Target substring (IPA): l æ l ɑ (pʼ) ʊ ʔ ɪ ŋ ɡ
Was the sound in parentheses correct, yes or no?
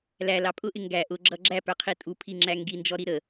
yes